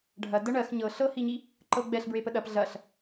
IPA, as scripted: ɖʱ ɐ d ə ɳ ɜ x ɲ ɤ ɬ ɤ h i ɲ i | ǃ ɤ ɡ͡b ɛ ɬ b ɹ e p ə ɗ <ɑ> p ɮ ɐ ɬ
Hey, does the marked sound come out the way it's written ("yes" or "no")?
no